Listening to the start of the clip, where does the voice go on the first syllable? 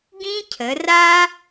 high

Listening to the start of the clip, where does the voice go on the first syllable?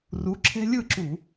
rising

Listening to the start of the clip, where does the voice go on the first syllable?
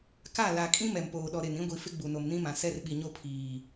falling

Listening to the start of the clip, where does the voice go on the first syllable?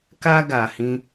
high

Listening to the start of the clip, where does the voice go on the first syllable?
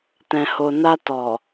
low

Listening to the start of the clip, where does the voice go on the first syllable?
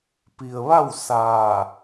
low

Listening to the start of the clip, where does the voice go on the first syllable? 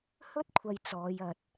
high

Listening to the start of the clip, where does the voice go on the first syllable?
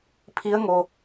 rising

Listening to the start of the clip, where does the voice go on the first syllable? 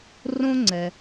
high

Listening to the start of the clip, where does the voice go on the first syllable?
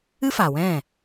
high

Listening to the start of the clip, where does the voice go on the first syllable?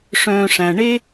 low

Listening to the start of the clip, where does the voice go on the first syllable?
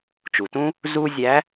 low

